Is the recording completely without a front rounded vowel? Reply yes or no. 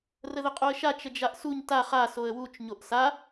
yes